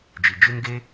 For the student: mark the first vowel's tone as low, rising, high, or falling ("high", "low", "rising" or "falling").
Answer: low